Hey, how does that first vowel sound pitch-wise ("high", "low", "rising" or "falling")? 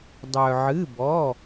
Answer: low